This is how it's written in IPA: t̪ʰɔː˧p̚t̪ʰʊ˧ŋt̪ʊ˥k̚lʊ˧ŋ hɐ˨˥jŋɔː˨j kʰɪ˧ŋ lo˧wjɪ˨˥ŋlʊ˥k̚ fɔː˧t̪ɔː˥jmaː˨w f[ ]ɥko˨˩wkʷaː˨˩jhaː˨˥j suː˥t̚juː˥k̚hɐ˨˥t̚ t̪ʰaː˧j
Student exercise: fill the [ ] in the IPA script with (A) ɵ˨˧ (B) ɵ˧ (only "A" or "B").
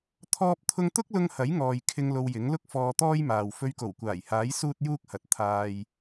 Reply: B